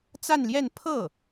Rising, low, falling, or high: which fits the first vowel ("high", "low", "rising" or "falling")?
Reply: falling